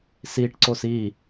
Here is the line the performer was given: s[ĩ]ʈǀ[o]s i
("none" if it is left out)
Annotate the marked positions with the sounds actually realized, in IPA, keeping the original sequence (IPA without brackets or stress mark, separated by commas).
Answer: i, o